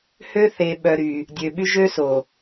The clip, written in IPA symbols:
h ø˦ θ e˨ ɓ œ˨ ɾ y˨ | dʲ ø˨ ɓ y˦ ʒ ø˦ s o˨

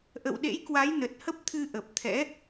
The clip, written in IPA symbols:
ʔ ə̰˧˨ w ɗ ḛ˧˥ j k w a˨˦ j n ə˨˩ t̚ h ə˦˥ p̚ t̪ʰ ɨ˧ ʔ ə˨˩ p̚ t̪ʰ ɛ̰˧˥

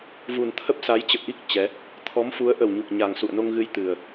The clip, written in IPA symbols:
v u˨˩ n t̪ʰ ə˦˥ p̚ s a˨˦ j t͡ɕ ə̰˧˨ w ʔ i˦˥ k̚ t͡ɕ ɛ˨˦ | t̪ʰ ɔ˨˦ m f u˨˦ ə̯ ʔ ə˨˩ w ɲ u˨˩ k̚ ɲ a˨˩ ŋ s ṵ˧˨ ə̯ n o˧ ŋ ɣ ɨ˧ j t̪ ɨ˨˩ ə̯

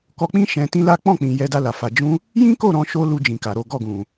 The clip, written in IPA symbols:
k ɔ˧ k͡p ĩ˦ ʃ ɛ̃˧ t ĩ˦ l a˦ k͡p ɔ̃˦˨ k͡p ĩ˨ j ɛ˧ d a˧ l a˨ f a˨ d͡ʒ ũ˧ | j ĩ˦ k o˦˨ ɾ ɔ̃˧ ʃ o˧ l u˦ d͡ʒ ĩ˧ k a˨ ɾ o˨˦ ɡ ɔ˦˨ ɡ ũ˨

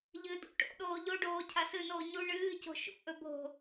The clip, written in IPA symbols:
ʎ ɨ d ṵ ʈ o̰ ɗ oː ʎ o ɖ oː cʰ a s ɨ n oː ɲ u ɳ ɨː c o̤ ʃ ṵ ʔ ɵ bʱ o̤

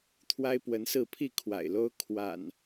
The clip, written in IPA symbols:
t̪ʰ w a˦ ɪ̯ p w ə˨˦ n s ɹ̩˥˨ pʰ i˥˨ kʰ w a̰˨˩ ɪ̯ l o˦ ʊ̯ kʰ w a̰˨˩ n

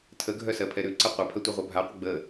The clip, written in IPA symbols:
tʰ ə ɡʱ œ s ɜ pʰ ɛ ɾ ʉ ǀ ə qʷ ɛ pʰ ɜ tʷ ɛ ʁʷ œ bʱ a qʷ ə ɡ͡b ə

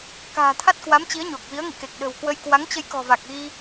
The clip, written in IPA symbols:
k a̤ː˨˩ t̪ʰ a˦˥ t̚ k w a˨˦ m t͡ɕ i˨˦ ə̯ ɲ o˨˩ k̚ v i˨˦ ə̯ ŋ ḭ˧˨ k e˨˩ k̚ ɗ ə̤˨˩ w k w ə˧ j k w a˨˦ ŋ t͡ɕ ə˧ j k ɔ̤˨˩ v a˨˩ k̚ ɣ i˧

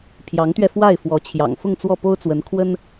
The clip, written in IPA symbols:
pʰ j ɑ˧˥ ŋ t̪ ɥ ɛ˧ f w a˥˩ ɪ̯ f w ɔ˧˥ t͡ɕʰ j ɑ̰˨˩ ŋ f ʊ˥˧ ŋ t͡s w ɔ˥˩ p o˥ ʊ̯ t͡s w ə˧˥ n kʰ w ə˥ n

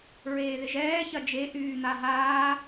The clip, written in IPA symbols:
ɹ eː ð ɪ ʒ ɛː ç ɐ d͡ʒ e ʔ yː n̪ a ɦ aː

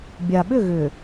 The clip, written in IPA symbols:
bʲ a˨ ɓ ʏ˦˨ ɣ ʏ˨

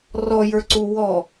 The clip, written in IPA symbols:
r ɔ j ə˞ ǀ u w ɔ

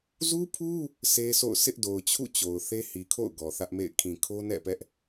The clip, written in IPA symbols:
z u˦ pʰ u˦ | s e˦ sʰ o̰˦˨ ʊ̯ sʰ ɪ˦ ʔ d o˨ ʊ̯ t͡ɕʰ ṵ˦˨ t͡ɕ o˨ ʊ̯ θ e˦ h i˨ kʰ o̰˦˨ ʊ̯ ɡ ɔ˨ θ ä˦ ʔ m ḛ˦˨ ɪ̯ kʰ ĩ˨ kʰ o˦ n ɛ̰˦˨ p ɛ˦ ʔ

